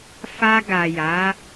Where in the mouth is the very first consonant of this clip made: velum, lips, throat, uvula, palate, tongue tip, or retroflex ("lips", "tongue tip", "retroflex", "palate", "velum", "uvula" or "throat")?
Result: lips